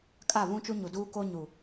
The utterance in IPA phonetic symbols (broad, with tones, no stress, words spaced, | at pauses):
kʼa˦˨βũ˦t͡ʃu˦ ɲu˨duː˦koː˦ ɲu˨